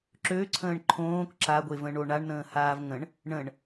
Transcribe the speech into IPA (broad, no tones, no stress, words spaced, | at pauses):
ǁøǀʰə̃ːɳ ǃʰõːk ǁaɡʷevə̃ɳo ɳaɳnə̃ːhaːv ŋə̃ɳ | ɳə̃ɳ